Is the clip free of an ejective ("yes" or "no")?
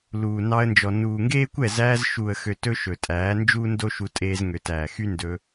no